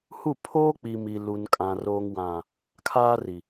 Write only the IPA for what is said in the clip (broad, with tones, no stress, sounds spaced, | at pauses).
h u˦˨ pʰ oː˦ k͡p i˨ m i˨ l u˨ n kʼ ã˨ r oː˨ ŋ w ã˨ | kʰ aː˦ r i˨